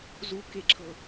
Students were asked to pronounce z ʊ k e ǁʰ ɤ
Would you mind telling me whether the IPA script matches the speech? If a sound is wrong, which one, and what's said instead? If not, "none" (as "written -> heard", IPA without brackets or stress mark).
ʊ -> u